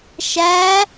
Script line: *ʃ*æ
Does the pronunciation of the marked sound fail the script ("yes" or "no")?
no